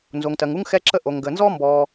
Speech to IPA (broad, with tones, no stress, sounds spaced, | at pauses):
n z o˩ ŋ t ɜ˩ ŋ u˥ ŋ x ɛ˥ ǁ ə˥ ʔ o˩ ŋ ɡ ə˩ n z ɔ˥ m b ɔ˩